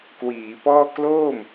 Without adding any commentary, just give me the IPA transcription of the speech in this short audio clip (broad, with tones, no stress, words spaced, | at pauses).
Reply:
kwiː˩˦pɔː˥˩ kloː˥˩m